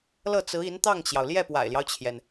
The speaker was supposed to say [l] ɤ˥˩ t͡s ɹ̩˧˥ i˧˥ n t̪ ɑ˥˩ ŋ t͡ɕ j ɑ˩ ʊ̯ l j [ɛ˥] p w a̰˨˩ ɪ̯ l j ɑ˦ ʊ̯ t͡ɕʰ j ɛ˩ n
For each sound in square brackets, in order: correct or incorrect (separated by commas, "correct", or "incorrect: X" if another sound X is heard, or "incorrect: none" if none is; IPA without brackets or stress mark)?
correct, incorrect: ɛ˥˩